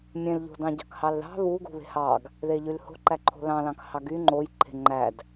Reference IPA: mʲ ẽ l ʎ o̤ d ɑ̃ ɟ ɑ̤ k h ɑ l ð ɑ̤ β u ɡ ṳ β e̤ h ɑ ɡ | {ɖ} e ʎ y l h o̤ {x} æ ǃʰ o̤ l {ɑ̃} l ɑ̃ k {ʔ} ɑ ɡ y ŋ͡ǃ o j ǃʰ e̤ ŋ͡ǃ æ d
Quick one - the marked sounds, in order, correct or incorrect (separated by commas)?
incorrect, incorrect, correct, incorrect